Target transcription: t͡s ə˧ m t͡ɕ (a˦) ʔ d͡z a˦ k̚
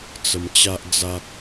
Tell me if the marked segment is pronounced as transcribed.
yes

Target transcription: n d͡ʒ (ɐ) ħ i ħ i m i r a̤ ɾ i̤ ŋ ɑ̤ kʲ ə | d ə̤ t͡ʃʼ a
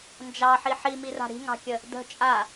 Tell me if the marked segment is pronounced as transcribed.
no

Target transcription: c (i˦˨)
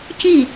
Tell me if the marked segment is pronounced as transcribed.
yes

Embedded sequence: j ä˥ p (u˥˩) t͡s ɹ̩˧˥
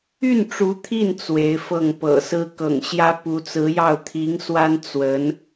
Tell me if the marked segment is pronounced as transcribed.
no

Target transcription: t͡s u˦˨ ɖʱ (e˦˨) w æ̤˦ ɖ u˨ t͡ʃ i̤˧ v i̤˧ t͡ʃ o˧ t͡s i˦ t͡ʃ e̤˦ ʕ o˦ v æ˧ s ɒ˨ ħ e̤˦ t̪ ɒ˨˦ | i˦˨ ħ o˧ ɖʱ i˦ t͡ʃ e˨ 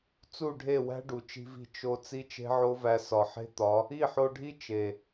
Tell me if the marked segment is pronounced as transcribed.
yes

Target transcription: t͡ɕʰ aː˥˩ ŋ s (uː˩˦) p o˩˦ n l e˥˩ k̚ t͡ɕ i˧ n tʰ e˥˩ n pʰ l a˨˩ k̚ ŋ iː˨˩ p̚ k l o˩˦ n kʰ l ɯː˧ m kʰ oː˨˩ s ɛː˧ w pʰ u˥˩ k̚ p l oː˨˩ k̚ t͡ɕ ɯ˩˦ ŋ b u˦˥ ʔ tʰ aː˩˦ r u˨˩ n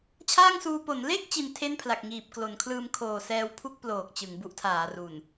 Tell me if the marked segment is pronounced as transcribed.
no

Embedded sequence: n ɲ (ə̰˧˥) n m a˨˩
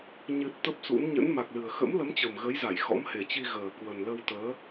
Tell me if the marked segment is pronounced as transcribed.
yes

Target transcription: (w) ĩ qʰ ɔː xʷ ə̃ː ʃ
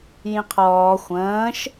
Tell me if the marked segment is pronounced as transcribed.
no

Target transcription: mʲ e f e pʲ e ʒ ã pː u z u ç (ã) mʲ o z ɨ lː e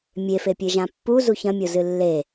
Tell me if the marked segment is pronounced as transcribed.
no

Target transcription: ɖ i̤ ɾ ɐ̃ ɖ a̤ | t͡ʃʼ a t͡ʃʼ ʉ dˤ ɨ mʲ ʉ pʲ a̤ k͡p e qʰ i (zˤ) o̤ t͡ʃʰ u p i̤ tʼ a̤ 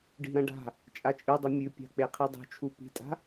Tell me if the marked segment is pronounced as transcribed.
no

